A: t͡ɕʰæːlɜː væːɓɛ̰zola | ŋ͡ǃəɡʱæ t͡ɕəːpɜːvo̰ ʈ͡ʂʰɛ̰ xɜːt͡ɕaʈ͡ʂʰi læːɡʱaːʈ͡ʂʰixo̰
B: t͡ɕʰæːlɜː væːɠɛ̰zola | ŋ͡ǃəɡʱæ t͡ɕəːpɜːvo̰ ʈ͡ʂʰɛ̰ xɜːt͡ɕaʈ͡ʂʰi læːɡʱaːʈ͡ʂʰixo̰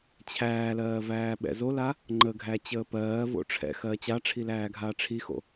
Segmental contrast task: A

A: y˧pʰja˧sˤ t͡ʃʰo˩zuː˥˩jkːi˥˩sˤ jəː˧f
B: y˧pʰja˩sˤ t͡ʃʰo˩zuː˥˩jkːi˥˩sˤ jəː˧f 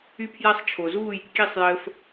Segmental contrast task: A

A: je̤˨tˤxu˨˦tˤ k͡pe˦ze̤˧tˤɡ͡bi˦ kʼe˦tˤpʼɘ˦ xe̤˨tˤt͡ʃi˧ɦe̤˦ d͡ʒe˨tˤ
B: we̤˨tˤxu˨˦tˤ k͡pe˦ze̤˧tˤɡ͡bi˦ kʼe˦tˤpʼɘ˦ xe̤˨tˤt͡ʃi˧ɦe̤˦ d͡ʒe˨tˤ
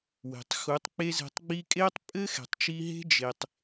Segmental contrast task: B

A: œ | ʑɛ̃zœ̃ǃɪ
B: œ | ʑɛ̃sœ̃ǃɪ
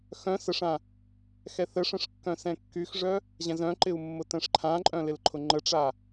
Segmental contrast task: A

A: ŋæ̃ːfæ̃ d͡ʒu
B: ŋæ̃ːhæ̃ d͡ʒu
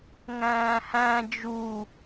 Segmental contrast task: B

